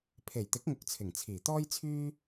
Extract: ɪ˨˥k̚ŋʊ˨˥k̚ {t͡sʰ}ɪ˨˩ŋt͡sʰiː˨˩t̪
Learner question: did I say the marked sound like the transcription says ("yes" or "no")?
yes